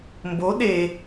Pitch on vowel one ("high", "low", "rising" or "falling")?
rising